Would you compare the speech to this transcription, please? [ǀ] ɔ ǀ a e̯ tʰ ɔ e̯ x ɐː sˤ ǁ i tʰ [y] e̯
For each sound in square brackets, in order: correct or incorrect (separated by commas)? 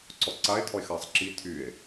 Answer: correct, correct